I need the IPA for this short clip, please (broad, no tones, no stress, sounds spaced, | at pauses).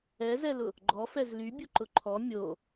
ɛ z ɛ l ʊ | ɡ͡ǃ ɔ f ɛ z l y bʲ ʊ ǃ ʊ ǃʰ ɔ mʲ o